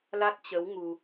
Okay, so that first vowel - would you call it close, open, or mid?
open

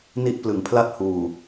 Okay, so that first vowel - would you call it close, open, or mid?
close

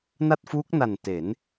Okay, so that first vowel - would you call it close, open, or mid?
open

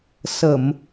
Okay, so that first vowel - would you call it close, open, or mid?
mid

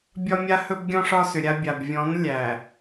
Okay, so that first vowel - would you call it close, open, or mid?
open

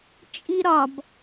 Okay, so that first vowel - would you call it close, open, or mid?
close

